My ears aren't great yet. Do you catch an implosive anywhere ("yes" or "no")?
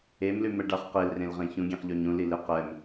no